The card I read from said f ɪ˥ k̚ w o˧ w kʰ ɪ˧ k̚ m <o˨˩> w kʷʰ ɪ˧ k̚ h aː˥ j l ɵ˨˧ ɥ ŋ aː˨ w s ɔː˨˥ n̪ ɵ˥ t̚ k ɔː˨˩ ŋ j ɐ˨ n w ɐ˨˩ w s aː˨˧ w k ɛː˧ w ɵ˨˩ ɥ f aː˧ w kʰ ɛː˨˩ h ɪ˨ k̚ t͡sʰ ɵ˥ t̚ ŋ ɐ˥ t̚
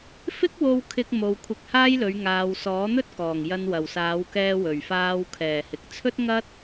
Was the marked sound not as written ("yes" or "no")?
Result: yes